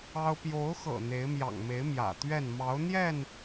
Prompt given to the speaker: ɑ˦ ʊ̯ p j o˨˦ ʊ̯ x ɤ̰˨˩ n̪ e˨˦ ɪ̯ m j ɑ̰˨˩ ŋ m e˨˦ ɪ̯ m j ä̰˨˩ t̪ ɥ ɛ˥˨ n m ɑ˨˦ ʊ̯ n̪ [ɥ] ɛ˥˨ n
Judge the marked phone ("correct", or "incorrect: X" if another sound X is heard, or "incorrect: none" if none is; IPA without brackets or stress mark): incorrect: j